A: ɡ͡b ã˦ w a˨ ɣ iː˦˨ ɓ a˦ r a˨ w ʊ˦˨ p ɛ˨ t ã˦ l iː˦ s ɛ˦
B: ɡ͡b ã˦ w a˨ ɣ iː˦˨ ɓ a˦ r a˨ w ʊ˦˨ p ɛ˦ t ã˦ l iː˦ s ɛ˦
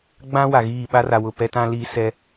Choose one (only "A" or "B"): B